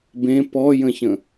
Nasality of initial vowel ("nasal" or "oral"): nasal